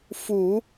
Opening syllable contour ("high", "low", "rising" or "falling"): low